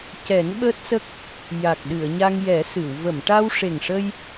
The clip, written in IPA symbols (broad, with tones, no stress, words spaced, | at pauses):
cɛ˨˩˦nɓəː˦˥t̚sə˦˥k̚ | ja˨˩k̚ɗɨ˨˩˨ə̯ ɲa˧ŋjɛ˨˩˦ sɨ˨˩˨w və˨˩˨mʈa˧wʂe˨˩ŋʂə˧j